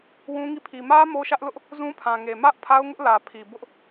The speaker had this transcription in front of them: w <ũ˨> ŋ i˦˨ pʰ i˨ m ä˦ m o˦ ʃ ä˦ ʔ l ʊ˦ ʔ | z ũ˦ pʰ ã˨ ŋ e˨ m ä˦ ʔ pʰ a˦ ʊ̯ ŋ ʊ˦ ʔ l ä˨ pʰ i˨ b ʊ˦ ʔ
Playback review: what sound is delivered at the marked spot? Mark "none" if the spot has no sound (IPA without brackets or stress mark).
ũ˦